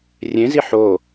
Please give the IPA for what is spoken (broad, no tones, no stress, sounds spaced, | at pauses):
rʲ ẽ z i ħ o